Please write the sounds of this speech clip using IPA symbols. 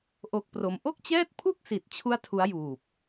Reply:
ʔ o˦˥ k̚ p r o˧ m ʔ o˥˩ k̚ t͡ɕ ɛː˥˩ t̚ pʰ u˥˩ k̚ s i˨˩ t̚ t͡ɕʰ u˥˩ a̯ tʰ u˦˥ a̯ j uː˨˩ p̚

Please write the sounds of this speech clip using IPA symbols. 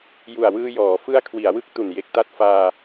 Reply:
j u˨˩ a̯ w ɯː˧ j ɔː˩˦ f ɯ˦˥ a̯ kʰ w i˩˦ a̯ w ɯ˦˥ k̚ t u˨˩ n j e˨˩ k̚ t a˦˥ t̚ f aː˧

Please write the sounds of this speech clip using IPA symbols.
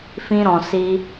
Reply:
f ĩ˧ ɾ ɔ̃˨ s i˧

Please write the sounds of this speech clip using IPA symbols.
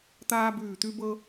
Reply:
t̪ aː˦ b ʉː˧˩ t̪ ʉ˦ b ɤ˦

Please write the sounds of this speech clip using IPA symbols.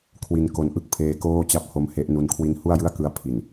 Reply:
kʰ w i˧ n k o˧ n ʔ ɯ˥˩ k̚ pʰ eː˧ k oː˥˩ t͡ɕ a˥˩ p̚ h o˦˥ m h e˦˥ ʔ n u˦˥ n kʰ w i˦˥ n h u˥˩ a̯ j ɯ˥˩ a̯ k ɯ˧ a̯ pʰ i˨˩ n

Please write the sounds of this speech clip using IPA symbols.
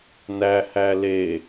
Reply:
n æ h æ l e

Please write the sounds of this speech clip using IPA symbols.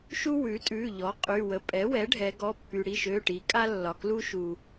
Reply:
ʃ u˥ w ʉ˩˥ tʼ ʉ˩˧˩ ʎ ɔ˩˥ qʼ y˩˧˩ w ə˩˥ pʼ ɛ˩˥ w ɛ˩˥ ɖʱ ɛ˩˧ ɡ ɔ˩˧˩ pː y˩ ɽ i˩˧˩ ʃ ø˩˧˩ ʈ i˩˧ kʼ a˥ lː ɒ˩ k l u˥ ʃ u˩

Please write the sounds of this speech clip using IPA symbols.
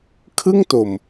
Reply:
kʰ ɯ˥˩ ŋ t o˨˩ m

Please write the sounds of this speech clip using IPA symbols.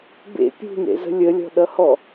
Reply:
b ḛ pʲ ṳ n ḛ z ə̤ lʲ ə lʲ ɔ̤ ɗ ʌ h ɔ

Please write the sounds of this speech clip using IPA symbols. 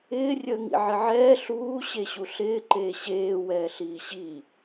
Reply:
ɪː rʲ əː ŋ ḭ ʕ ɪ ʕ ɛː ɬ uː ɕ e ɕ u ɬ ɪː ǃ eː ɕ eː w ɛː ɬ iː ɕ i

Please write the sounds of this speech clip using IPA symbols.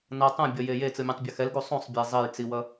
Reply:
n ʌ tˤ ũ bʲ ʌ j e j e t͡s ɯ mʲ ã tˤ bʲ ʌ x ɛ l ɡ u sˤ ũ sˤ bʲ e zˤ e j t͡s i w ʌ

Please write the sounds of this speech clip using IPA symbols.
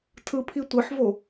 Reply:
tʰ ɯ pʰ i tʷ ɯ ħ v o

